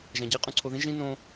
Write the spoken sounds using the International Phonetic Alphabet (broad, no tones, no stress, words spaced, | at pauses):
ʒæ̃ɟe qʼũǀʰoðĩ ʒĩ nõ